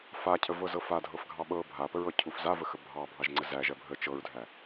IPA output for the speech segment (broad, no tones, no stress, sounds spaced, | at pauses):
f a cʰ ə v ɤ z ɤ f a dʱ ɤ f ɡʱ ɑ ɓ ɤ bʱ a p ə ɹ ɤ cʰ u f z a v ə x ə bʱ ɑ bʱ ɑ ʒ ŋ͡ǀ ə z æ ʒ ɜ bʱ ə t͡ʃ ɤ ɹ dʱ æ